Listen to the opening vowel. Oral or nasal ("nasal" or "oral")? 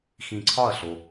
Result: nasal